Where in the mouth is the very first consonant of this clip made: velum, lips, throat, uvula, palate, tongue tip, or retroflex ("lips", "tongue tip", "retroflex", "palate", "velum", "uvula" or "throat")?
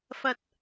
lips